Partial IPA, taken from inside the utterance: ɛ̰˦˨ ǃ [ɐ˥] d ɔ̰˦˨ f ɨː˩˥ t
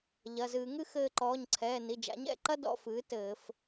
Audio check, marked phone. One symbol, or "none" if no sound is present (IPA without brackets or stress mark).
ɐ˥